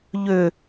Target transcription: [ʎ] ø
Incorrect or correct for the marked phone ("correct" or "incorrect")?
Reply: correct